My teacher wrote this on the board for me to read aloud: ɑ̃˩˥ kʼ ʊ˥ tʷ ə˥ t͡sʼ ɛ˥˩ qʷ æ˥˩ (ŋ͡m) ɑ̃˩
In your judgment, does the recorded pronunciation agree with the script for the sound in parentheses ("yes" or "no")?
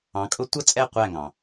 no